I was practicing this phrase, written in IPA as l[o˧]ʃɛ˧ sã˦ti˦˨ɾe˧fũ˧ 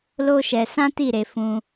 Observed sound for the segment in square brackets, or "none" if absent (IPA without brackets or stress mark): o˦